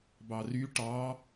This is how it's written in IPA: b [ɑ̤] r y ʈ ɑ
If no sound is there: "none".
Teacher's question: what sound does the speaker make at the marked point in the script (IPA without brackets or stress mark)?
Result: ɑ